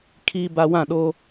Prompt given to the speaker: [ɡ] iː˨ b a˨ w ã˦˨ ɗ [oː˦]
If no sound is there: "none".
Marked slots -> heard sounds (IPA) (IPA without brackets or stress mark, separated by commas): kʰ, oː˦